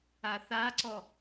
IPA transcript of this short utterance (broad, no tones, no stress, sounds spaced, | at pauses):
a θ a ǀ ɔ